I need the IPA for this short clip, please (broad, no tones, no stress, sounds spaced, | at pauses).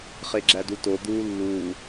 χ e ɡ͡ǁ æ d u t o d̪ uː lː uː